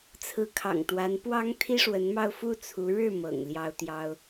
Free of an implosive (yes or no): yes